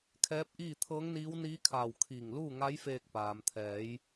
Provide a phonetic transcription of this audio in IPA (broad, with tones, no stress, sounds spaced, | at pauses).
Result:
kʰ ɛː˧˥ p̚ ʔ iː˥˨ t̪ʰ ɤː˧˥ ŋ n iː˧˥ w n iː˧˥ kʰ aː˧˩ w kʰ iː˧˩ ŋ l uː˥˨ ŋ a˧˥ j f eː˧ k̚ p aː˩ m t̪ʰ ɛː˩˧ j